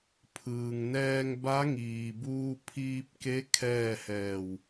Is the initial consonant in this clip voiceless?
yes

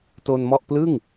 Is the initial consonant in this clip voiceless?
yes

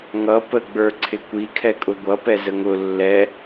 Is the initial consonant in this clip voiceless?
no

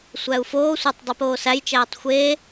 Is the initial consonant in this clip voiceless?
yes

